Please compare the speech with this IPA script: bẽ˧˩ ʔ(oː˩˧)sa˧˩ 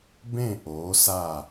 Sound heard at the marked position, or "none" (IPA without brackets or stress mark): oː˩˧